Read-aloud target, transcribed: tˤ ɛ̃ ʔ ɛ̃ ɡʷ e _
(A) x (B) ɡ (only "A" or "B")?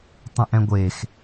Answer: A